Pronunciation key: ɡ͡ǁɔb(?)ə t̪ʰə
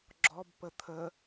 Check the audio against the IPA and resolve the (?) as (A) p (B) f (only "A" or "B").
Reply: A